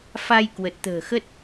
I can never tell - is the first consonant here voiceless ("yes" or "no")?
yes